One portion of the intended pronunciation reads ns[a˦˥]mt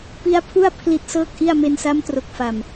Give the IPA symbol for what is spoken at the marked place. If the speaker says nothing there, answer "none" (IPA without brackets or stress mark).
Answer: a˦˥